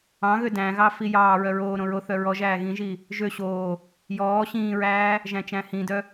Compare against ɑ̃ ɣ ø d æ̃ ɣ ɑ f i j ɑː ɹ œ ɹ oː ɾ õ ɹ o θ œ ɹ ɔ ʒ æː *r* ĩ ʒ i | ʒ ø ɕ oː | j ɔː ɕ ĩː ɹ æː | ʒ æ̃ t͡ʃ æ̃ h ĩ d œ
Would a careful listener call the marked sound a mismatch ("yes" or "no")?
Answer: yes